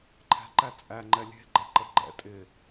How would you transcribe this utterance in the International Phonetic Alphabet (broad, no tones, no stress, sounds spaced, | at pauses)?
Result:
ǃʰ ɛ̤ ǃ æ t͡sʼ æ ŋ͡ǃ ɛ lʲ e̤ ɡ͡ǃ ɛ ǃ ə ɡ͡ǃ ɛ̰ tʼ ɪ